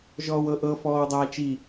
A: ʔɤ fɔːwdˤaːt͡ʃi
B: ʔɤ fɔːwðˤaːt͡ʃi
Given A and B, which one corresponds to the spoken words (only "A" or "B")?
A